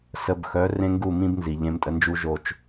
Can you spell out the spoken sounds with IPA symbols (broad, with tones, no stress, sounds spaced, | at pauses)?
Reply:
s ə˧ b x œ˨˦ r ẽ˦ ŋ ɡ u˦˨ m ĩ˦ b n z i˨ ʎ ẽ˧ m tʼ ə˧ n d͡ʒ u˦ ʒ o˧ t͡ʃ